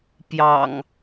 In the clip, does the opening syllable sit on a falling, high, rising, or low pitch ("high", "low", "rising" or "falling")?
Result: low